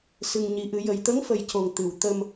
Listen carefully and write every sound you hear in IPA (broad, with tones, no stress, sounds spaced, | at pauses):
s ɨ˧ ŋ ɲ i˧˥ ʔ ɨ˧˥ j ə˨˩ j t̪ ə˧˥ ŋ f ə˨˩ j c o˨˩ ŋ t̪ ɨ˨˩ w t̪ ə˧ m